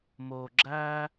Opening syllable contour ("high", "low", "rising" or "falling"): low